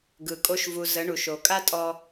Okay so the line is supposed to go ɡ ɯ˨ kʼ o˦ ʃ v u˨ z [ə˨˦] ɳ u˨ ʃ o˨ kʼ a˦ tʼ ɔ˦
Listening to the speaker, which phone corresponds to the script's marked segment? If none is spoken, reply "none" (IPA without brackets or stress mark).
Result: ə˨˦